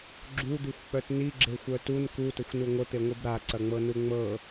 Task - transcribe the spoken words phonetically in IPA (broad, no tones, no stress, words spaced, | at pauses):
ɡ͡ǁud̪ixʷk͡pœt niɡ͡ǁexʷœ tun kutəxʷnu ŋʷət̪eŋʷib ɾaǀɐŋ͡mɤnu ŋ͡mɤ